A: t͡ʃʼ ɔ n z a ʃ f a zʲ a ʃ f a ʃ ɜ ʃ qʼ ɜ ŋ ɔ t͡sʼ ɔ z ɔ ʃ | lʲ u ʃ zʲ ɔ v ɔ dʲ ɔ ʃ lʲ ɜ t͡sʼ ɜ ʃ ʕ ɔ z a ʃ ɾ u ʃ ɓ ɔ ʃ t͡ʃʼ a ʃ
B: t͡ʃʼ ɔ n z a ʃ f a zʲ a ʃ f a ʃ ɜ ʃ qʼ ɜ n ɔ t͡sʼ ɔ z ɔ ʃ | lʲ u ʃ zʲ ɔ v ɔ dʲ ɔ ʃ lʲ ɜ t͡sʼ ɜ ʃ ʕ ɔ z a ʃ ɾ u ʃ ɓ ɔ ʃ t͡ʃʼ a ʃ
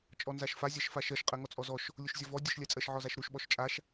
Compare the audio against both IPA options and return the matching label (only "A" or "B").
A